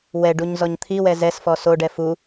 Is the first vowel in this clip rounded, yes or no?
no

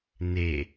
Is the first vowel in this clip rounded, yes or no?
no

